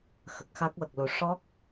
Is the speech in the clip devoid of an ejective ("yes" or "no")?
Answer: yes